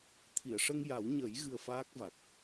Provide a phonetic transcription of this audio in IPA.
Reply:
t̪ʰ i˨˩˨ ə̯ ʂ ə˧ ŋ j a˨˩˦ w ɲ ə˨˩˦ j ɣ ɨ˧ ə̯ f aː˦˥ k̚ v a˨˩ k̚

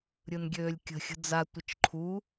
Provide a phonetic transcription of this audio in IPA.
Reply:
ɾʲ ɯ n ɡʲ øː lʲ kʲ ə̤ xʲ ə̤ d͡z a tʷ ə t͡ʃ ǃʰ u

